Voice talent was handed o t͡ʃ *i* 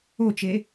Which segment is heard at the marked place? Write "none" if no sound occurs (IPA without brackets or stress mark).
e